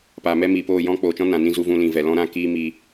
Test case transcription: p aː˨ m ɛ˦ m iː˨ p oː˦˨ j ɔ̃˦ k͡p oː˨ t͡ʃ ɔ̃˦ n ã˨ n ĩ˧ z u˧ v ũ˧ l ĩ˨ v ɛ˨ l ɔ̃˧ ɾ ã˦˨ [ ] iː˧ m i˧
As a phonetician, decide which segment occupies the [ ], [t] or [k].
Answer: k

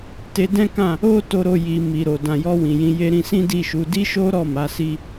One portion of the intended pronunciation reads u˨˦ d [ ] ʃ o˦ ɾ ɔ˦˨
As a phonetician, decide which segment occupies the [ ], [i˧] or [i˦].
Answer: i˦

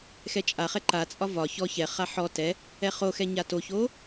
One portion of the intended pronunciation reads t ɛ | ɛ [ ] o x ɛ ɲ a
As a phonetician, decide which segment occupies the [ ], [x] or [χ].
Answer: χ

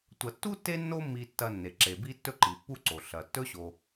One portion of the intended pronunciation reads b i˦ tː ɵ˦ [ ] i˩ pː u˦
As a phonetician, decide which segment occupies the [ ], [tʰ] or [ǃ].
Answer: ǃ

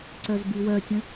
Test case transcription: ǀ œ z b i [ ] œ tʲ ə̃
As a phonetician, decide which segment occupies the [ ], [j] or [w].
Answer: w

